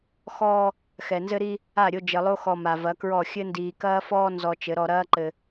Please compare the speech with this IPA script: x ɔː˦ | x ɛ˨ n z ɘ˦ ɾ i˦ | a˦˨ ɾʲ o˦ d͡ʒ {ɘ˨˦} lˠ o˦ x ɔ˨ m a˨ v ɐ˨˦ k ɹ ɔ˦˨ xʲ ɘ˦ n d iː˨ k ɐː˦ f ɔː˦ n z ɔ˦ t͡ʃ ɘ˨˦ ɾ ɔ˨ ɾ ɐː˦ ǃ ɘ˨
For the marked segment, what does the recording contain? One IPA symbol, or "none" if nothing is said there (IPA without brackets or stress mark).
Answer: ɘ˨